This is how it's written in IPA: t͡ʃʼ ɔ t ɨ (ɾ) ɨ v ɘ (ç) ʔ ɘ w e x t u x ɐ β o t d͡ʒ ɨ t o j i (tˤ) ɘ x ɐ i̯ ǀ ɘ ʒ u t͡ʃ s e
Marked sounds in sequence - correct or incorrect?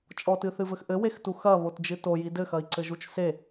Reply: incorrect, incorrect, incorrect

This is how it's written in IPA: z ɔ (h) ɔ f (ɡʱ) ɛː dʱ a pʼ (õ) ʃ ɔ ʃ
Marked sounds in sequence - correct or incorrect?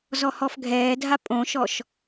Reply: correct, correct, correct

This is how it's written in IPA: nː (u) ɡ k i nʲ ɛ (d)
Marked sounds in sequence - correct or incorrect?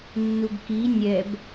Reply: correct, incorrect

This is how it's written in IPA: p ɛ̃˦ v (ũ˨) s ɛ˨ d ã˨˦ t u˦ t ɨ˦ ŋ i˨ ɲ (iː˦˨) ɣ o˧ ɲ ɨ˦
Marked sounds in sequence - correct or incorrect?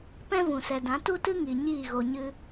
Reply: correct, correct

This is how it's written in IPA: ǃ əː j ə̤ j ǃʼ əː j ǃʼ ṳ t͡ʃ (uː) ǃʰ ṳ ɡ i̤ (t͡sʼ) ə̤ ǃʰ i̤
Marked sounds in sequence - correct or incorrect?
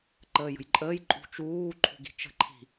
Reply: correct, incorrect

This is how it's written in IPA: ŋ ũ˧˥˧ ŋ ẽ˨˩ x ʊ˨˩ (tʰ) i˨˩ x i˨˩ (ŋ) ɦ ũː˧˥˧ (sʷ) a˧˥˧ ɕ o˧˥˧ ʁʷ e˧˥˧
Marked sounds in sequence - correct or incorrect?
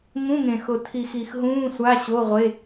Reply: correct, incorrect, correct

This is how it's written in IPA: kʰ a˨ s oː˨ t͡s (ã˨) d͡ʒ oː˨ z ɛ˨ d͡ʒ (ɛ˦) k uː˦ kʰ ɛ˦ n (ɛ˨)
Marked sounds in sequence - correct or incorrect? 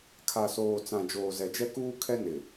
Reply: correct, correct, incorrect

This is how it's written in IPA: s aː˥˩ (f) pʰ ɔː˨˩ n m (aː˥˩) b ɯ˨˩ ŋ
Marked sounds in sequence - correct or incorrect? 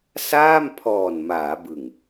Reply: incorrect, incorrect

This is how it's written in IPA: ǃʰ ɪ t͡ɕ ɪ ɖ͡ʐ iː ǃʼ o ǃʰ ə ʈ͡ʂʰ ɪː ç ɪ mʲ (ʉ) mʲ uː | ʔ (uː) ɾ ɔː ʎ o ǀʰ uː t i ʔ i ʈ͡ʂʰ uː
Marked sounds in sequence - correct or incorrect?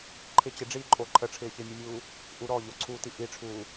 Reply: correct, incorrect

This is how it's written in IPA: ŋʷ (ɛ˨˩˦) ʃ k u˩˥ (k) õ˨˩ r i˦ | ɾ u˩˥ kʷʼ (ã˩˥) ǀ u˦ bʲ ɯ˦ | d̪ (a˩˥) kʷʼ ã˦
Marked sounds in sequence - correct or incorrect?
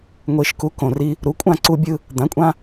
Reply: incorrect, correct, incorrect, incorrect

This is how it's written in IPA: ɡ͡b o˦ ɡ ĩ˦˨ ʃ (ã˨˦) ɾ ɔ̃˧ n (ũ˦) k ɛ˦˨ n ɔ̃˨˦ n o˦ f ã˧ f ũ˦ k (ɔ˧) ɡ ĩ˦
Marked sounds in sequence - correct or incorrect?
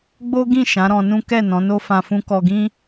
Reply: correct, correct, correct

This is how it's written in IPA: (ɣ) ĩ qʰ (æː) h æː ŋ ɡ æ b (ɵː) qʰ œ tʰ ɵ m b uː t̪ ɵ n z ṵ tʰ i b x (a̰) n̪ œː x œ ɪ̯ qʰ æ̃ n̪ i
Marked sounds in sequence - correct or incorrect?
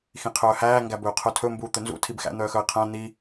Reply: incorrect, incorrect, correct, incorrect

